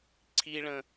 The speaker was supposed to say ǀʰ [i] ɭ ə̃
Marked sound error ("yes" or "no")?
no